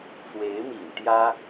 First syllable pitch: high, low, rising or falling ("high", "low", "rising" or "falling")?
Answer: rising